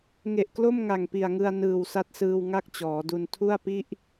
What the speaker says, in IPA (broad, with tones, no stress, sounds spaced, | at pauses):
ŋ e˨˩ ʔ k l o˥˩ m ŋ a˨˩ ŋ p i˨˩ a̯ ŋ ɯ˧ a̯ n ɯː˨˩ w s a˦˥ t̚ s ɯː˧ w ŋ a˥˩ k̚ t͡ɕ ɔː˩˦ d u˧ n tʰ u˥˩ a̯ p i˥˩ ʔ